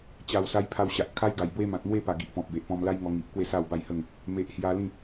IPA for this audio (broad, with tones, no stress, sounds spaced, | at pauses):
t͡ɕ a˨˩ w s a˧ j pʰ a˧ w ɕ a˨ ʔ kʰ a˦ j ɡ a˨˩ j b w e˦ m ã˨ t̚ m w e˥˧ p a˨˩ ɡ i˨ ʔ p ɔ̃˨ p̚ b e˨ ʔ p ɔ̃˧ m l a˦ j ŋ ɔ˧ ŋ i˨ ʔ k w e˥˧ s a˥˧ w b a˥˧ j h ə˥˧ ŋ | m e˨ ʔ h j a˧ l ĩ˥˧